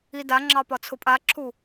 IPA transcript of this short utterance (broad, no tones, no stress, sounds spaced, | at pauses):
i d a ŋ͡ǁ ɑ p ɒ t͡sʰ ʊ pʼ a ǁʰ u